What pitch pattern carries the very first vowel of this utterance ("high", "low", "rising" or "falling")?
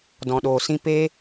low